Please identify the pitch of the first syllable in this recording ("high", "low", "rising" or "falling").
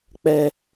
low